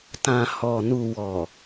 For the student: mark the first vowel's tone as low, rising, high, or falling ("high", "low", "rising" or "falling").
low